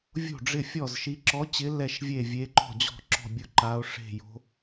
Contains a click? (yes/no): yes